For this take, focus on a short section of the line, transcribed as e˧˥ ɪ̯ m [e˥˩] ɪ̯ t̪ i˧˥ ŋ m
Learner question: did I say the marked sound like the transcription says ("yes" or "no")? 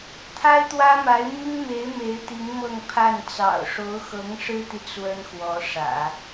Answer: no